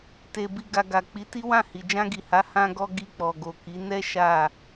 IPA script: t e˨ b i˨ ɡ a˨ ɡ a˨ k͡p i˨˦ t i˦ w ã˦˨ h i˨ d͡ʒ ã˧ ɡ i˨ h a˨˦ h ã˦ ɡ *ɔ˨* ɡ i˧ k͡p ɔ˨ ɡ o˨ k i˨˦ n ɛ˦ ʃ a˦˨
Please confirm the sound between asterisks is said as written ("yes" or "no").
no